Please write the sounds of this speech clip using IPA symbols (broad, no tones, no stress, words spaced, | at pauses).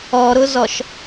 ɔɾʊzɔʃ